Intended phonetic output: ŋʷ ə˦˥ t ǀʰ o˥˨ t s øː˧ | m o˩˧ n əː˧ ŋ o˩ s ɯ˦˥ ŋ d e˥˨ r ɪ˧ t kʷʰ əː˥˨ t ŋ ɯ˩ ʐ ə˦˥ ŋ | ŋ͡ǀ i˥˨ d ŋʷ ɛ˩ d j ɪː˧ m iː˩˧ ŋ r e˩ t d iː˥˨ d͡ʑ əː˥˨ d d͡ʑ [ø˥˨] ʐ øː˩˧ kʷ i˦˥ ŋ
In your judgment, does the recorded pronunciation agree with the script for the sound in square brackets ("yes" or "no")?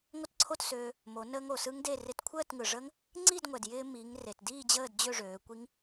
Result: yes